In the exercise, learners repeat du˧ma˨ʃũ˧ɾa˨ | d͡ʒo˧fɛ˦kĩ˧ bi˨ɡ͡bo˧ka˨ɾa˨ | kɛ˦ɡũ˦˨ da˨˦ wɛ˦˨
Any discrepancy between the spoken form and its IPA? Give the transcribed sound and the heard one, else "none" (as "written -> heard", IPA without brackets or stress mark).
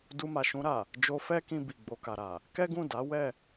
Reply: none